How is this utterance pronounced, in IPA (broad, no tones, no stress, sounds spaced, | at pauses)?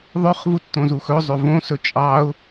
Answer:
ðˤ œ χ v u tː õ z u x ɵ zˤ ø v õ s ɵ t͡ʃʼ ɑ ʊ̯